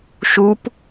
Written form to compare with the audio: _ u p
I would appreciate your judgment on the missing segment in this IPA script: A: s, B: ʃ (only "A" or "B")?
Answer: B